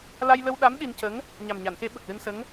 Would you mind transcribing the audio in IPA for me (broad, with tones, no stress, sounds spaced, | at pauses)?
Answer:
l a˧ j l ə˧ w ɗ a˧˥ m ɗ i˧ n c ə˧˥ ŋ | ɲ a˨˩ m ɲ a˨˩˨ n x e˨˩˦ ɓ ə˨˩ k̚ l ɨ˧ n s ə˧˥ ŋ